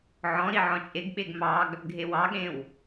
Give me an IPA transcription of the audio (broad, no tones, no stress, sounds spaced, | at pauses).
ʕ ɔ̃ ɾ i ʕ ɔ̃ t͡ʃʼ e ɡ ɓ e ɡ m ɑ ɡ | ɡʱ e w ɑ ɠ ẽ w